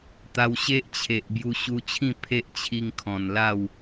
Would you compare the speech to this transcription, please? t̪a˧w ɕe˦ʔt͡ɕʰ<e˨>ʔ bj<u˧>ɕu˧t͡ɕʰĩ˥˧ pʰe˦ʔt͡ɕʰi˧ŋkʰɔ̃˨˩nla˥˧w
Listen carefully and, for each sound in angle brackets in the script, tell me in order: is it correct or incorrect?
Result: correct, correct

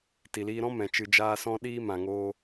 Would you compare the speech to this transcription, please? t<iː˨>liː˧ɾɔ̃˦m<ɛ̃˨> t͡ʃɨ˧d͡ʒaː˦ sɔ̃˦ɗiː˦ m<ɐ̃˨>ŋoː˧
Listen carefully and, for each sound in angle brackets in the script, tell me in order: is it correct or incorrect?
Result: incorrect, correct, incorrect

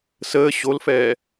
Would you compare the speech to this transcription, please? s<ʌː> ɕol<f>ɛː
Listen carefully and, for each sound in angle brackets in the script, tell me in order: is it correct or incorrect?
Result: incorrect, correct

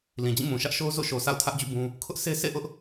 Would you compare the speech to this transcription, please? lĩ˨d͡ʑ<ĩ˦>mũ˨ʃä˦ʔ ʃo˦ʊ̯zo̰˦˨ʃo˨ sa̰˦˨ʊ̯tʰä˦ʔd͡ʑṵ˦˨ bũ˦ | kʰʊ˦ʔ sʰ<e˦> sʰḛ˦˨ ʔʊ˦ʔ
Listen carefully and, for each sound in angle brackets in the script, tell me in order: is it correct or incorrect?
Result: incorrect, correct

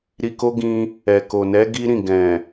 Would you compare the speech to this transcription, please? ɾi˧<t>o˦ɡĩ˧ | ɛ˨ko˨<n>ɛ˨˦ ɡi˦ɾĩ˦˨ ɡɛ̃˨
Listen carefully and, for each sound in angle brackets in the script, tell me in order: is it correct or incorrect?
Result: incorrect, correct

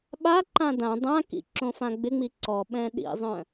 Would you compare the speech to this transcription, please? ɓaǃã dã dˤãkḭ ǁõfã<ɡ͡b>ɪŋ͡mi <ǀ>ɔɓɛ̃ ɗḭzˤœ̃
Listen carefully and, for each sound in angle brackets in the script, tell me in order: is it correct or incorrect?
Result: correct, correct

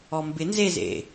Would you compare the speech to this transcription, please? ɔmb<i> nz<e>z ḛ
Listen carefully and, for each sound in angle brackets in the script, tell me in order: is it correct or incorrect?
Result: incorrect, correct

